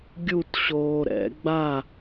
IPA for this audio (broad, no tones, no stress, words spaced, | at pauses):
ɡʲut ɕoːɾɛ̰ ɡ͡ba